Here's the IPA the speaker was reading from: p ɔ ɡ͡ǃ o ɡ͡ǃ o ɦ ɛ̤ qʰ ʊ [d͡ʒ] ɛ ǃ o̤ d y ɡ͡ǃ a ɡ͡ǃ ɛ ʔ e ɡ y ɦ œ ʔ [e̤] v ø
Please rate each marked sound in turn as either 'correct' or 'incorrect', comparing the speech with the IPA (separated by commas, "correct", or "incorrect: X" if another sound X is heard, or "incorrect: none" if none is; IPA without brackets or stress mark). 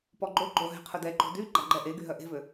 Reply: incorrect: d, correct